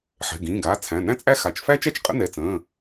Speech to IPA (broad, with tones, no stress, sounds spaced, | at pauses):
ħ ɛ̤˩˧˩ ɡ ĩː˩˧˩ ɡ aː˩˧˩ t͡sʰ æ̃˩˧˩ n æ̃˥ t͡sʼ æ˥ x a˩˧˩ t͡ʃ f æ˥ t͡ʃ æ˥ t͡ʃ qʼ ə̰˥ n ɛ˩˧˩ t͡s ə̃ː˩˧˩